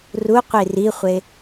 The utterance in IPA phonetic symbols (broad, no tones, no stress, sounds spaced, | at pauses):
r u qʷ i r i χʷ e